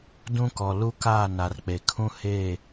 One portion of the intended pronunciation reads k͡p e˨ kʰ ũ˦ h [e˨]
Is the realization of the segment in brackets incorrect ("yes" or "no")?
yes